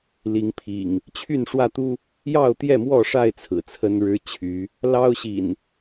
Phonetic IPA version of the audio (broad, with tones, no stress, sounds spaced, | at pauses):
l i˨˦ ŋ pʰ ḭ˨˩ ŋ | t͡ɕʰ y˥˨ n ʂ w ä˥˨ t̪ u˦ | j ɑ˥˨ ʊ̯ t̪ j ɛ˥˨ m w ɔ˥˨ ʂ a˥˨ ɪ̯ t͡sʰ ɹ̩˨˩ t͡sʰ ə˦ n ɻ ɻ̩˦ t͡ɕʰ y˨˦ | l ɑ˦ ʊ̯ ɕ ḭ˨˩ n